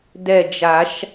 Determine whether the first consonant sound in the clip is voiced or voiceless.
voiced